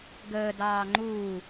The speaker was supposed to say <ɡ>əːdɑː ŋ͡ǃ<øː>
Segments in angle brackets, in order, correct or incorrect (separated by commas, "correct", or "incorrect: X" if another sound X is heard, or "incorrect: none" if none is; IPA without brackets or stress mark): correct, incorrect: uː